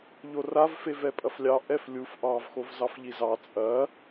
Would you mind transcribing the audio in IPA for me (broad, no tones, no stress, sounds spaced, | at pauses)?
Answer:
ʎ o r a v f e v ɛ pʼ ɐ f lʲ ɑ ʔ ɛ f lʲ u f ʔ ɑ v x o v z ɑ f ʎ i z ɑ t͡sʼ ɐ